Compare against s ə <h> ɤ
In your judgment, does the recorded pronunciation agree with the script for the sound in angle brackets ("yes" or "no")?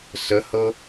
yes